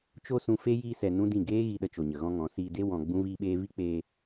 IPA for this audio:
t͡ʃo˦sũ˧ fe˦ jiː˦sɛ˧nũ˦dĩ˦˨ ɡeː˦ ɣi˧ ɗə˧t͡ʃo˨ɲə˨ ɣɔ̃˦ŋɔ̃˨˦ siː˧de˦ wɔ̃˧ ɡ͡bũ˦viː˦ɓeː˦ vi˦k͡peː˧

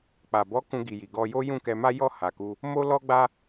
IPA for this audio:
k͡pa˨bɔ˨˦ kũ˧ɡi˨ji˨ ɡɔ˧jo˦ jũ˦˨kɛ˧ma˦ jɔ˦˨ha˨ku˧ | mo˦ lɔ˦ɡ͡ba˦

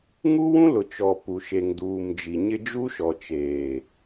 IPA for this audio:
ŋu˦wũ˦lʊ˨ t͡ʃɔ˨pu˨ʃe˨ŋ duː˨md͡ʒi˨ɲɪ˦ d͡ʒu˦ʃɔ˨ t͡ʃeː˨

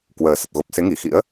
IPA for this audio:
kwəː˨˩sə˨˩t̚ɣo˨˩p̚ se˨˦ŋi˧˩xḭ˧˥ə̯

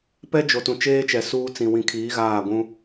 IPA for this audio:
pɛ˦ d͡ʒo˨tũ˨t͡ʃeː˦t͡ʃɛ˨ suː˦ t͡sĩ˨wĩ˨kʰiː˨˦ ɣaː˦˨ɡʷũ˦

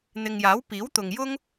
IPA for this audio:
n̪ɪ˨ŋjaː˨˥w piː˨˥wt̪ʊ˨ŋjʊ˥ŋ

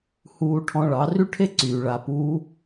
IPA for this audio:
huː˧ʈʰɔ̃˧ɭɑ˨˦ ry˦ʈʰe˦ǀyː˨ ɭa˨ puː˧

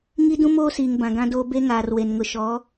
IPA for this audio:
ŋi˦dũ˦moː˦siː˨ŋ bã˨ɡã˦doː˦ be˦ŋaː˨r we˨nŋʊ˨ʃɔ˨˦

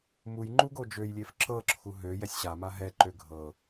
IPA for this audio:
muj ŋ͡ǃuɡod͡ʒøjlʲef ǁɤǁʰu ɦø jɛsʲɕama ɦɛǃø ɡʱɤ

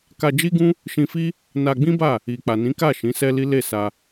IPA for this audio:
ka˧d͡ʒi˦ɡũ˦ | ʃĩ˧fi˦ | na˧ɡ͡bĩ˦ba˦˨ | i˨ k͡pa˨nĩ˨˦ka˦˨ ʃĩ˨˦sɛ˦li˦ le˦˨sa˧

